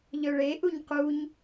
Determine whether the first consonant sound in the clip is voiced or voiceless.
voiced